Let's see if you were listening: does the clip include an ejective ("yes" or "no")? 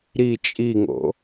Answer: yes